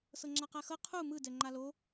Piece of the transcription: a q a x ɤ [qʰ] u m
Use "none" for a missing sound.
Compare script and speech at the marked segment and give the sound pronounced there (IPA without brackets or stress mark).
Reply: qʰ